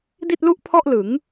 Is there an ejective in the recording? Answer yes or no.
no